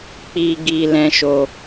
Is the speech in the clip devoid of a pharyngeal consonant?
yes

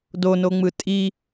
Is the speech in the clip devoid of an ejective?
no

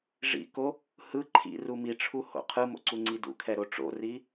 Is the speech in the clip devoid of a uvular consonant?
no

